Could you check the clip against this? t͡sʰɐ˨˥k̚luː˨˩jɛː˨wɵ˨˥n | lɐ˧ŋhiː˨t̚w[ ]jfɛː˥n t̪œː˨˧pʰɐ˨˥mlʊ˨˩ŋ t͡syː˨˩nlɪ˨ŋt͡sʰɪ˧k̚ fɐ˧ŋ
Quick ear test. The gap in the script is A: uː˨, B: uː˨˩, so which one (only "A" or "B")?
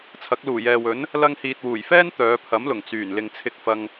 B